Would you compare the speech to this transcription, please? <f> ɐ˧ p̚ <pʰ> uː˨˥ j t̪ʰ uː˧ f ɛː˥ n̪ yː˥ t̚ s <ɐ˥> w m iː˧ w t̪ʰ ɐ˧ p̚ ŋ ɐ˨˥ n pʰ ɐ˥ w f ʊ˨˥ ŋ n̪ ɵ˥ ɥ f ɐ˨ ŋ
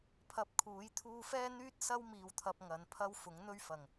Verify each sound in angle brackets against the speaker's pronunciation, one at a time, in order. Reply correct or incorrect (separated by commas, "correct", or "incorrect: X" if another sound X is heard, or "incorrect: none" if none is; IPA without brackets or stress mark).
incorrect: pʰ, incorrect: kʰ, correct